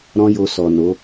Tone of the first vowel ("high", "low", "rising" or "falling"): high